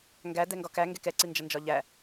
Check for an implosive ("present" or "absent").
absent